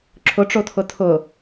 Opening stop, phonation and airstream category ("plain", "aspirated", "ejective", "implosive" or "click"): click